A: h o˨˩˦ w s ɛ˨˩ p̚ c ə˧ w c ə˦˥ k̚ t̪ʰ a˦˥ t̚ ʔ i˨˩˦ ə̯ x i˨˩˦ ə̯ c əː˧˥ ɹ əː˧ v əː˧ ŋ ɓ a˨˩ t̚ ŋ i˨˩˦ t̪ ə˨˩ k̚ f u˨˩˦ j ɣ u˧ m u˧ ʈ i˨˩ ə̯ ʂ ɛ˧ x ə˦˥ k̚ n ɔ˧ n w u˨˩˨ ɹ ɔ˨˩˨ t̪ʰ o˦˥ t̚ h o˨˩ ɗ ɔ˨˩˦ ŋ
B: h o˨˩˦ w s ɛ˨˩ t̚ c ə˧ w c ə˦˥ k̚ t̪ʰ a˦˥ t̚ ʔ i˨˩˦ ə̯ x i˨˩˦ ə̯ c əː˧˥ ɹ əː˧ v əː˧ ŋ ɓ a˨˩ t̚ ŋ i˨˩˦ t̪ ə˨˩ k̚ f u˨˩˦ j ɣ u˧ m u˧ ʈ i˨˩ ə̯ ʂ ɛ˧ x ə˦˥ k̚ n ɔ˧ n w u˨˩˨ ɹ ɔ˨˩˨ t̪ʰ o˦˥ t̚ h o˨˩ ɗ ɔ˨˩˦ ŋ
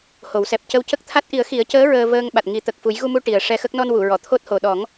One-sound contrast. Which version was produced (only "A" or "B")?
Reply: A